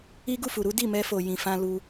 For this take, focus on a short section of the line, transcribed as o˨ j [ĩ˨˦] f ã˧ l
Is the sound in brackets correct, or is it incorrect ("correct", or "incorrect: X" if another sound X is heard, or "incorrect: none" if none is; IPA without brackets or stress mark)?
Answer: incorrect: ĩ˨